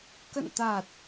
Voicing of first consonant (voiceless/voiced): voiceless